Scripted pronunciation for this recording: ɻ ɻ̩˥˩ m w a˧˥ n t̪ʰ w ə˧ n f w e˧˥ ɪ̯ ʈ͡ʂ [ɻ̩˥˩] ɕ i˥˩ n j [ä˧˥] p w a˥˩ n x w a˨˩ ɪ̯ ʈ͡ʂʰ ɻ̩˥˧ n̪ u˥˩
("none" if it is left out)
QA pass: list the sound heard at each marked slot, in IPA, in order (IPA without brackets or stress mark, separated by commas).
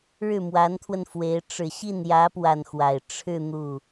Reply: ɻ̩˨˩, ä˧˥